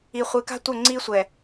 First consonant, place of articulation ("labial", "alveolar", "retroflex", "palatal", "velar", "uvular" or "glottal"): uvular